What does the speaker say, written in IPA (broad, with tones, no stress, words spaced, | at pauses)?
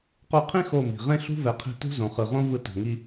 qo˧qʰĩ˦ xo˦˨mi̤˨ ʁẽ˦ ɬṳ˦vɛ˨qʰi̤˧tṳ˦ zõ˨χɯ˨ʁõ˦ vɯ˧to̤˨ŋi˧